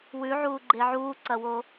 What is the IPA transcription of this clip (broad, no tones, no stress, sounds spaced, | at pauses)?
w ʉ ʕ uː ɡ͡ǃ e ʕ uː ǀ ɐ w o